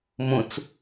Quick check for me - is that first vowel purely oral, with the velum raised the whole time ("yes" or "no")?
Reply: no